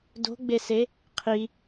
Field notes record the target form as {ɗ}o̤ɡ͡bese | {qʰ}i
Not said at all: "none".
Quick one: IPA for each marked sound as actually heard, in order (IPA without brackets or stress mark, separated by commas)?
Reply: d, qʰ